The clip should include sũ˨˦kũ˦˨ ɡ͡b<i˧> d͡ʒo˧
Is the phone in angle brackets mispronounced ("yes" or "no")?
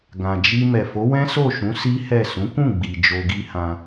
yes